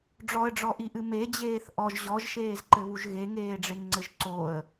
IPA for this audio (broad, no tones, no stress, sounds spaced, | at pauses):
ɖ͡ʐ ɔ ə̯ ɖ͡ʐ ɔ ʔ i ʔ ɨ m e d͡ʑ eː θ ʔ ɔ ʒ ʑ ɔ ʒ ʃ eː z ǃ ɘ β u ʒ ɣ e ŋ eː ɖ͡ʐ e ŋ ŋ͡ǀ ɘ ʒ ǀ o ə̯